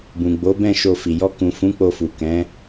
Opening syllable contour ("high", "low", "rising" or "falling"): low